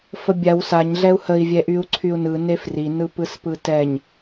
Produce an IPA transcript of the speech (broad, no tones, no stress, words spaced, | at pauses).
fəbʲaw saɲ ɮɛu̯həi̯ vʲɛʔyu̯ǀʰyu̯nɯ nefri nɯpɯspɯtɛɲ